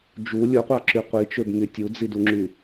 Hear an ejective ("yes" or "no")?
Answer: no